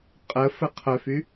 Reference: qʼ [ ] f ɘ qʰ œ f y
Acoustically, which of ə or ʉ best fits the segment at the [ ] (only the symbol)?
ə